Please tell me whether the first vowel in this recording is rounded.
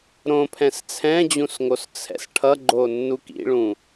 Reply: yes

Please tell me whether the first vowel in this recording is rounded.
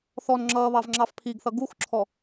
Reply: yes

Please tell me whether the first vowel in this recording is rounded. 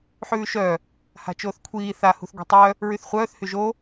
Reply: yes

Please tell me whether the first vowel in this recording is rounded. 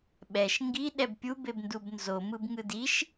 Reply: no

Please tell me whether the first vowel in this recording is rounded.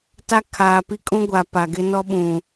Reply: no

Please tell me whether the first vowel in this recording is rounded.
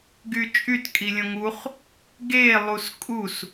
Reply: yes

